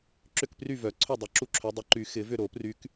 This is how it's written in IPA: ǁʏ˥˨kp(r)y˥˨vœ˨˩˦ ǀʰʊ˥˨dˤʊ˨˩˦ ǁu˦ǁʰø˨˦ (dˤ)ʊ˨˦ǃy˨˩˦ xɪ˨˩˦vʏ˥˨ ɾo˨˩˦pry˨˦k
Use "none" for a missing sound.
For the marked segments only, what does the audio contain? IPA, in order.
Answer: r, dˤ

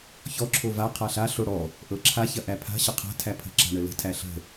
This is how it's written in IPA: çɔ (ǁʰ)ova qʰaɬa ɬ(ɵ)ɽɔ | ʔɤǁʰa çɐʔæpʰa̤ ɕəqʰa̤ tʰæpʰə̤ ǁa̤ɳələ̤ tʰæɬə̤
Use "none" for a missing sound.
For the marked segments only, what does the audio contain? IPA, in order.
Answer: ǁʰ, o

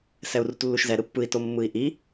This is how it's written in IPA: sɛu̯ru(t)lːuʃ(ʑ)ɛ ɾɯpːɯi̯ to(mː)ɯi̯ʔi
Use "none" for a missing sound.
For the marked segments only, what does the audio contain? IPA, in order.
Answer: t, z, mː

